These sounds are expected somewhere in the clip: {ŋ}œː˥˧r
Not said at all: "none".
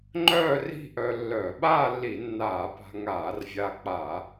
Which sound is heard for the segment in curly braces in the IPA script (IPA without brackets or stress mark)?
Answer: ŋ͡ǃ